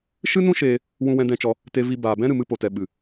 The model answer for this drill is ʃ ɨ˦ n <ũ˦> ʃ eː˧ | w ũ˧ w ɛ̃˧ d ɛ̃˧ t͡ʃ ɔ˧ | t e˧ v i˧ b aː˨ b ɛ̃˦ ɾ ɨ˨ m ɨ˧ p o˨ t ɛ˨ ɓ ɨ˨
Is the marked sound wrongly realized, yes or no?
no